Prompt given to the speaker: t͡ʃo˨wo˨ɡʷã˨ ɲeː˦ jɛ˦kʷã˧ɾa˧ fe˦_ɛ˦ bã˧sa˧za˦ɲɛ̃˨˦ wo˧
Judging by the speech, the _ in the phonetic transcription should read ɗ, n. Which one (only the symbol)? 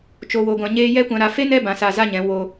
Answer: n